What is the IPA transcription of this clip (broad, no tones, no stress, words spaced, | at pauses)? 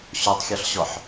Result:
ɕotˤxʲɒɬɕɔħ